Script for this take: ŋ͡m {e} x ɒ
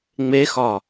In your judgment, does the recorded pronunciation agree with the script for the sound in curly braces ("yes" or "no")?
yes